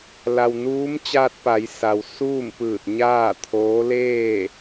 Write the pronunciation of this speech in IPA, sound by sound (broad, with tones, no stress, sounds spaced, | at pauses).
l a˩ w n uː˧˥ m t͡ɕ aː˧ t̚ p a˩˧ j s a˩ w s uː˥˨ m p ɯː˧˩ t̚ ɲ aː˥˨ t̪ʰ oː˧˥ l eː˥˨